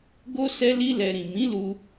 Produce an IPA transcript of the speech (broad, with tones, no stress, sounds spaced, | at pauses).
ɡ o˦ s ɛ˦ l i˦ l ɛ˧ ɾ ĩ˨ m ĩ˨˦ l u˧